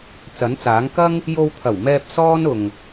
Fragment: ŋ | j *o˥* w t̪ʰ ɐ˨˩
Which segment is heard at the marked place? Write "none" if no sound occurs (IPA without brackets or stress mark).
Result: o˧